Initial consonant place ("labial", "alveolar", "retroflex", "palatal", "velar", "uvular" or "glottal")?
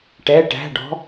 retroflex